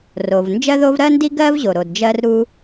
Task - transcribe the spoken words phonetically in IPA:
r o˩ v n d͡ʒ ɜ˥ ð o˥ v ɾ ɜ˥ n d i˥ ɡ ɜ˥ v ʑ o˩ ɾ o˩ d d͡ʒ ɜ˥ r ɾ u˥

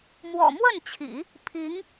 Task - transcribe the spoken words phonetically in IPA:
m w ɔ̰˨˩ m w ə˥˩ n t͡ɕʰ ḭ˨˩˦ | pʰ i˧˥ ŋ

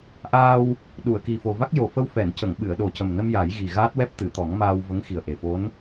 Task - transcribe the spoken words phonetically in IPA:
ʔ aː˧ w | ɗ u˨˩˨ ə̯ k i˨˩ f o˨˩ v a˦˥ k̚ j o˨˩ f ə˧ w f ɛ˨˩˨ n c ə˨˩˨ ŋ ɓ ɨ˨˩˨ ə̯ ɗ o˨˩ c ə˨˩ m n ə˧ m j a˨˩˦ j ɣ i˨˩ ɣ aː˦˥ t̚ w ɛ˦˥ p̚ t̪ ɨ˨˩˨ t̪ ɔ˨˩˦ ŋ m aː˧ w v ə˧˥ ŋ x i˨˩ ə̯ ʔ e˨˩ f o˧˥ n

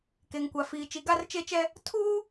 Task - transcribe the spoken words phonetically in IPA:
k e˨ ŋ kʷ a˨ f iː˨ t͡ʃ i˨˦ ɡ a˦ r t͡ʃ e˦ t͡ʃ ɛ˦ | tʰ uː˦

